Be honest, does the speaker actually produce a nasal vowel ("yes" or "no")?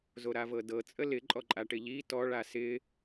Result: no